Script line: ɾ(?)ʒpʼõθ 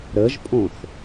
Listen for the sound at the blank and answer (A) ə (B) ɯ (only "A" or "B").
A